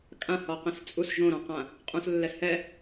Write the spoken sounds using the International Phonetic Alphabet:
kʼ ã h ɔ q ɛ̃ s t͡sʼ u s ʒ õ ɾ ɔ̃ q ã | qʼ ũ s lː ɛ s h ɛ

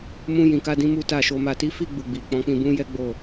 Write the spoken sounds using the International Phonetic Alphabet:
m ũ˧ j ĩ˨ k a˧ d ĩ˧ m u˦ t a˦˨ ʃ o˨ m a˨ t i˨˦ f i˦˨ ɡ͡b u˧ ɡ͡b i˨ k͡p ɔ̃˨˦ k͡p ĩ˧ b ũ˦ j ɛ˦ ɡ͡b o˦˨

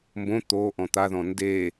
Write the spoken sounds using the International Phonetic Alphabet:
m b õ t̪ o ʔ ɔ̃ t̪ a ð ɔ̃ n d e

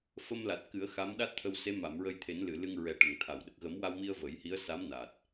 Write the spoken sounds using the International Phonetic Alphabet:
f ə˧ m l a˨˩ t̚ k ɨ˨˩˦ ə̯ x a˧˥ m ɗ a˦˥ t̚ t̪ʰ ə˧ w s e˧˥ m a˨˩˨ m ɹ ə˧ j t̪ʰ e˨˩˦ n l ɨ˨˩˨ l ɨ˧ ŋ ɹ ɛ˨˩ ʈ ə˨˩˨ ŋ t̪ʰ a˨˩˨ w ɗ ə˨˩ k̚ ɣ ə˨˩˦ m w a˧ w m i˧ ə̯ v ə˨˩˦ j h i˧˥ ə̯ s a˧˥ m n a˨˩ t̚

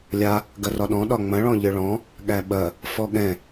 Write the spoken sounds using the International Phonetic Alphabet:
lʲ a | ɡ ɐ r ɒ ɗ ɔ̃ ɗ ɒ ŋ͡m ɐ̃ ɭ ɔ̃ ʎ ɘ ɭ ɔ̃ | ɠ æ ɓ ɐ | f ɔ ɠ ɛ̃

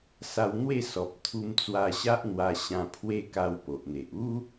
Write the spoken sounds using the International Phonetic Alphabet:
s a˧ w n̪ w e˥˧ s ɔ˨ p̚ t̪ʰ u˧ m t͡s w a˧ ɕ a˦ ʔ n̪ w a˧ ɕ ã˧ pʰ w e˦ k a˧ w p o˨ ʔ n̪ e˨ ʔ u˦

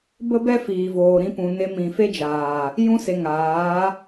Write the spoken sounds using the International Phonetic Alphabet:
b ə˦ b ɛ˦ f iː˨ v oː˨ ɾ ĩ˧ p ũ˨ n e˧ m ĩ˨ f e˦ d͡ʒ aː˨ | j ũ˧ s e˨ ŋ aː˨˦

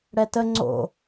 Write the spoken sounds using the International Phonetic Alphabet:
ɽ ɛ t ə ŋ͡ǀ o̰

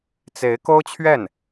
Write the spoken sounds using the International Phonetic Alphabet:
t͡s e˧˥ ɪ̯ k o˥ ʊ̯ t͡ɕʰ ɥ ɛ˥˩ n

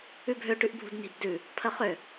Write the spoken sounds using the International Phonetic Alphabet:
ʉ bʱ ø ʈ ʉ ʔ bʱ ṳ d n i̤ b d ʉ | pʰ ə χ ø

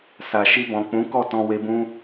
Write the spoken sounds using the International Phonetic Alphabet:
s a˨ ʃ i˧ b ɔ̃˨ k͡p ũ˨˦ k ɔ˦˨ t ɔ̃˧ w e˧ b ũ˦

